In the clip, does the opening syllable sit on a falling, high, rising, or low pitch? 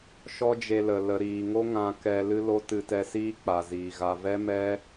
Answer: high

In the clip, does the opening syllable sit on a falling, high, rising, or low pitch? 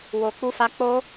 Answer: high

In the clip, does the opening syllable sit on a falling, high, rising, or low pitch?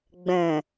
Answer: low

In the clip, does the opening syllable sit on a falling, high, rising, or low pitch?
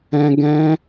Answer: high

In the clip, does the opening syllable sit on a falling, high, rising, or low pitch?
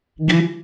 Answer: high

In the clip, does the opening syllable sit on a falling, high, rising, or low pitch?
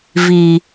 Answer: low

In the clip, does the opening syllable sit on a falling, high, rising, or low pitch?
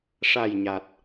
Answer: low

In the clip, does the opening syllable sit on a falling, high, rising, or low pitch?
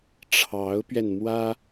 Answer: rising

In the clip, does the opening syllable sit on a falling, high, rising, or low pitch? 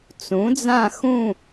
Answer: rising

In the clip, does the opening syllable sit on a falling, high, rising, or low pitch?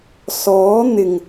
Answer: rising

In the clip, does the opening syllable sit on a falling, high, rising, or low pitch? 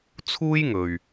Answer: high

